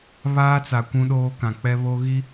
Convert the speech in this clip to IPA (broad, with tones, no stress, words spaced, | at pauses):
βaː˦t͡sa˨ kʷũ˦ɗoː˦kã˨k͡pɛ˦ βo˦ɣi˦